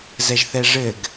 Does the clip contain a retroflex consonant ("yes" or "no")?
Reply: yes